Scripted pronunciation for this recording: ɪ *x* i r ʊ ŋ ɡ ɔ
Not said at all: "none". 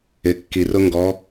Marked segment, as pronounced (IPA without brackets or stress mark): kː